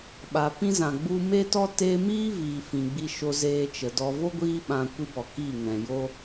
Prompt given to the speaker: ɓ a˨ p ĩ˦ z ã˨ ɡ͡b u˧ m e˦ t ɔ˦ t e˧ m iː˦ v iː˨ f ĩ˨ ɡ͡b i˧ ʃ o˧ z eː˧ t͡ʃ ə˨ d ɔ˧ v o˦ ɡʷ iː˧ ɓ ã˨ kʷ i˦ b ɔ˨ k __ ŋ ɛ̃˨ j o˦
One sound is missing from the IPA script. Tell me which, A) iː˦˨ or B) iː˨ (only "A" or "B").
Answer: A